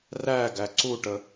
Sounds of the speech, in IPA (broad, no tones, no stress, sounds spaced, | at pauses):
r æ ɡ æ ǀ u ʈ ə